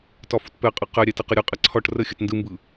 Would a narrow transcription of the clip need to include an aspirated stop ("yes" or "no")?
yes